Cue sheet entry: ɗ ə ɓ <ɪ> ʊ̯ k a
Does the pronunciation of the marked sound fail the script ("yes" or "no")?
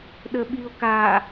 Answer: yes